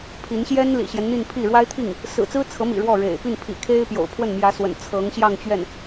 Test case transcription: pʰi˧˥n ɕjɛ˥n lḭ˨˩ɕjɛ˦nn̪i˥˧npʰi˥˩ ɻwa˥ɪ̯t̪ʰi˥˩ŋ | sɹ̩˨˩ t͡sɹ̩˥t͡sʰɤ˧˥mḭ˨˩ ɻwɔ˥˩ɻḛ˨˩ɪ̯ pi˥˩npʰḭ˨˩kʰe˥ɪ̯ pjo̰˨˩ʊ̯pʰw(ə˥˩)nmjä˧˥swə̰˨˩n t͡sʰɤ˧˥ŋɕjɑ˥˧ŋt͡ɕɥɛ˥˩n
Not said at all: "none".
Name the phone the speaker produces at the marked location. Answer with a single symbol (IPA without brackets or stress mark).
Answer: ə˥˩